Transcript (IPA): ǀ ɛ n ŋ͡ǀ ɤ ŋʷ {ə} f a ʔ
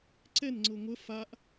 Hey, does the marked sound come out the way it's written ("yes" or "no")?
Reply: yes